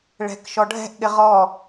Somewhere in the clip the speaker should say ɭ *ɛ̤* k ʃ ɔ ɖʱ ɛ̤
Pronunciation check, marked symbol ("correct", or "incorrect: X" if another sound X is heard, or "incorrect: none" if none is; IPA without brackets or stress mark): correct